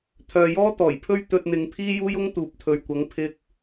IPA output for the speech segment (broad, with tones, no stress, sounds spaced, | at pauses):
t̪ʰ œː˨ j ɔː˥ t̪ ɔː˨˩ j pʰ ɵ˥ ɥ t̪ ɵ˧ t̚ n̪ ɪ˨˧ ŋ pʰ iː˥ j uː˥ j ʊ˥ ŋ t̪ uː˨ p̚ t̪ʰ ɵ˨ ɥ kʷ ɐ˨˥ ŋ pʰ ɪ˥ k̚